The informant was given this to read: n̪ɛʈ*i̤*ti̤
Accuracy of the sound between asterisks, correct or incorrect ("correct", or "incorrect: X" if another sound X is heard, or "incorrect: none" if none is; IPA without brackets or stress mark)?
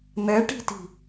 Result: correct